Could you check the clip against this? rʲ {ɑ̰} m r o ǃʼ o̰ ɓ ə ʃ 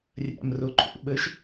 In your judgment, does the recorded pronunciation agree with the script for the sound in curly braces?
no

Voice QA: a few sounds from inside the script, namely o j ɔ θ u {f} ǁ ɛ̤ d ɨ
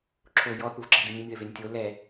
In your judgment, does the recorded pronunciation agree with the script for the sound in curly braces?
no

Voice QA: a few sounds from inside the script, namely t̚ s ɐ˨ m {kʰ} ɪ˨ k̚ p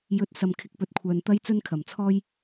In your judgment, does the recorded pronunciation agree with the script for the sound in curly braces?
yes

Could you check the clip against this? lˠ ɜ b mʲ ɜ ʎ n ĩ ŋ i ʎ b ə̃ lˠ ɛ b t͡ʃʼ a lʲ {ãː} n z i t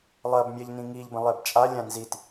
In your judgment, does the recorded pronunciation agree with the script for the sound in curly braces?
no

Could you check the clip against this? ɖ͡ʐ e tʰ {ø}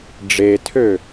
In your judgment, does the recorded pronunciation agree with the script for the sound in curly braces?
yes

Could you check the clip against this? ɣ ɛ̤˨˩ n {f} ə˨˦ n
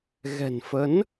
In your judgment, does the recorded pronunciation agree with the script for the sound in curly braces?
yes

